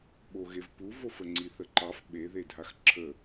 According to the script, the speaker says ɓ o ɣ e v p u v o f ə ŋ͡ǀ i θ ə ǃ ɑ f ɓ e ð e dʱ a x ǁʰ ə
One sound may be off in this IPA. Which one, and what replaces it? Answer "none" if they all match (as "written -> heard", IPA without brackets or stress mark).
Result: none